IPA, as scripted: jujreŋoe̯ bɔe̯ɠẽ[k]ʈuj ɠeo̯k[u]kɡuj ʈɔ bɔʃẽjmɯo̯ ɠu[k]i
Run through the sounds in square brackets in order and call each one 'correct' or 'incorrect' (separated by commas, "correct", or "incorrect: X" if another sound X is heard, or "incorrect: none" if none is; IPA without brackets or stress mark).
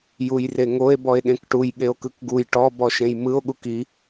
correct, incorrect: ɯ, correct